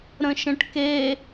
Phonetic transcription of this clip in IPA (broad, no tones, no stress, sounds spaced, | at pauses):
ɾ ə̃ ʃ ə̃ ʈ k e